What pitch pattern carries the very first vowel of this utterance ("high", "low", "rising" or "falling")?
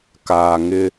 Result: low